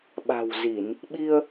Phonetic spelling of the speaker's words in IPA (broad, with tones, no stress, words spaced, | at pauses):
ɓa̤˨˩wzi˧˩˨n | ɓi˧ə̯